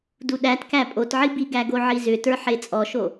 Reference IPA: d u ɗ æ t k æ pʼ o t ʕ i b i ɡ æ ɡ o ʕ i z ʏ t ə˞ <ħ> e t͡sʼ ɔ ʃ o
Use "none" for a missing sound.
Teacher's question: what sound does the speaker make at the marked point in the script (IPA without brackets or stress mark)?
ħ